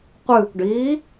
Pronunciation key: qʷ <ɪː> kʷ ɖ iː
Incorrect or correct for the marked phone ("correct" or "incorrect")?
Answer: incorrect